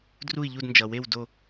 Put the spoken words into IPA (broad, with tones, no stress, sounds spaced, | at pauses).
d r u˥˧ i̯ ʎ u˥˧ d n d͡ʒ ʌ˨ w e˥˧ w d o˥˧